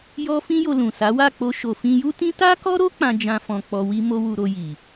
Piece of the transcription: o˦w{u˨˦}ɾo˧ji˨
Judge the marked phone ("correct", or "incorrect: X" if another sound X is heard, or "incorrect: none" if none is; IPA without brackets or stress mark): incorrect: u˧